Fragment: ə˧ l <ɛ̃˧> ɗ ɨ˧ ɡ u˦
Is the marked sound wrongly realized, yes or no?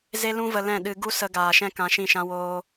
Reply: yes